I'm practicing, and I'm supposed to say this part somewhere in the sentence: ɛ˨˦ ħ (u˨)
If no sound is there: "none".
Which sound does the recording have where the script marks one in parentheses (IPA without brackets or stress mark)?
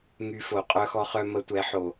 o˨